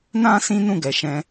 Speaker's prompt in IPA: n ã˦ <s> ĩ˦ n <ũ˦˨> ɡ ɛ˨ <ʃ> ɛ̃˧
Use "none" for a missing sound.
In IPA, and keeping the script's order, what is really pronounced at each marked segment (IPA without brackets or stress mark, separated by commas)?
s, ũ˦˨, ʃ